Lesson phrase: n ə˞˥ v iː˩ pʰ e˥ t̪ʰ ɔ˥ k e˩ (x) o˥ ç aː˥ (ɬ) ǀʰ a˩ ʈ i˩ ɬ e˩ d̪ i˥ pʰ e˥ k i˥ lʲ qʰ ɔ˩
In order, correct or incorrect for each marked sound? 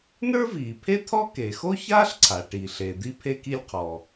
correct, correct

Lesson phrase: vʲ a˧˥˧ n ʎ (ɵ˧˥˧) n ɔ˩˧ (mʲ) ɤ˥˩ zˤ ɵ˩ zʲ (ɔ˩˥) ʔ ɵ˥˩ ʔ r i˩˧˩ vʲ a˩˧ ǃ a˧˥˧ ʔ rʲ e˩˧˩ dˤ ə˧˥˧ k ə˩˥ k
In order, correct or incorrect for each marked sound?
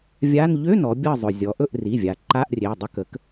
incorrect, incorrect, incorrect

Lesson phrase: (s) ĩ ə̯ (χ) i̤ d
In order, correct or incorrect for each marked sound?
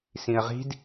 correct, incorrect

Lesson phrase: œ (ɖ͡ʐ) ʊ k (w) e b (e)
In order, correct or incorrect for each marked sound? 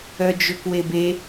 incorrect, correct, correct

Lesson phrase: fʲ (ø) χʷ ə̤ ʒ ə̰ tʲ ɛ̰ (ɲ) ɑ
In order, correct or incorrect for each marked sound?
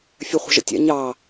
incorrect, correct

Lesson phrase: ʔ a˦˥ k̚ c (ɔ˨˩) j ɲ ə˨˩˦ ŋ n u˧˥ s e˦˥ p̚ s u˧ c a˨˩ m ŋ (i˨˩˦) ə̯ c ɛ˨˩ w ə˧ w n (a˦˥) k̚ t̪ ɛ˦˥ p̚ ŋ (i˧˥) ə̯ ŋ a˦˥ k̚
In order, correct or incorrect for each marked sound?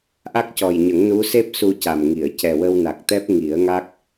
correct, incorrect, incorrect, incorrect

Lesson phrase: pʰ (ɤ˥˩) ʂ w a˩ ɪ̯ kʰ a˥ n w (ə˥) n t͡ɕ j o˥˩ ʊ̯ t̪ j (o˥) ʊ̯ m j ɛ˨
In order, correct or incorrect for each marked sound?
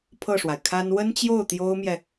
correct, correct, correct

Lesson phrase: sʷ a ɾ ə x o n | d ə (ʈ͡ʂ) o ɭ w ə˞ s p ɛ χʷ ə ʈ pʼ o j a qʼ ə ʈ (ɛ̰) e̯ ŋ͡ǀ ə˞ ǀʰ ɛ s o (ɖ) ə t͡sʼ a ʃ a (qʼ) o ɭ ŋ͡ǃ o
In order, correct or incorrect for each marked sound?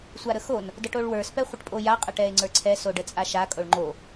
incorrect, incorrect, correct, incorrect

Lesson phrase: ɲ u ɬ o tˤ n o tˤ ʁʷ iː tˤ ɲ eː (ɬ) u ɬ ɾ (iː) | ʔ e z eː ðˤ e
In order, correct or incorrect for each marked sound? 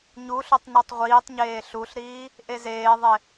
correct, correct

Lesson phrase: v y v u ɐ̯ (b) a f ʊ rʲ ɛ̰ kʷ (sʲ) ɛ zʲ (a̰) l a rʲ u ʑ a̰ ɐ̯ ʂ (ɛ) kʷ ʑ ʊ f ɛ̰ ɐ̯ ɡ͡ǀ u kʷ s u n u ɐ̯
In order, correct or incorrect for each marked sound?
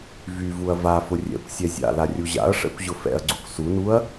incorrect, correct, correct, incorrect

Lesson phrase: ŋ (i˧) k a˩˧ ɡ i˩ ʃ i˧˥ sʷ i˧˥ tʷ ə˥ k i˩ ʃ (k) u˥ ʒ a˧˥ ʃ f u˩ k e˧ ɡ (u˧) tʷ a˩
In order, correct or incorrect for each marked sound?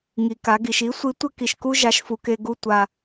incorrect, correct, correct

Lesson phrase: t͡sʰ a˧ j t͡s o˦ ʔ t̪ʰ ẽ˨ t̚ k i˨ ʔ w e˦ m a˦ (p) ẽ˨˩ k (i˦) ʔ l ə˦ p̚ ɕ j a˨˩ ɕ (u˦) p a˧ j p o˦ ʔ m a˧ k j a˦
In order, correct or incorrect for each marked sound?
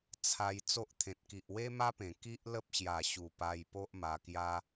correct, correct, incorrect

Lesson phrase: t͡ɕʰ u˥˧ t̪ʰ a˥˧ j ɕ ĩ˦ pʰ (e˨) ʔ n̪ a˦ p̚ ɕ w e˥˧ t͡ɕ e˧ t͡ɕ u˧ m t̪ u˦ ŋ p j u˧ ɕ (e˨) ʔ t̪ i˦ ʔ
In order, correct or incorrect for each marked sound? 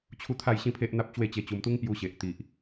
incorrect, correct

